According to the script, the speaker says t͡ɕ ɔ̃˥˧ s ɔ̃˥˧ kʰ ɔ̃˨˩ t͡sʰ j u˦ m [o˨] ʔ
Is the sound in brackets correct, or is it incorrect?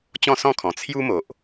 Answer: correct